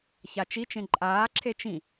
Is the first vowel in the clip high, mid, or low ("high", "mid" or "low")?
low